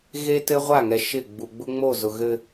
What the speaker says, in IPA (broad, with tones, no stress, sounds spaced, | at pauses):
ɣ e˦ t ɘ˦ ʁʷ a˦˨ ŋ ɛ˨ ʃ ɪ˦˨ ɡ͡b u˨ ɡ͡b ʊ˦ ŋ͡m o˦˨ z ʊ˨ ɣ ɘ˦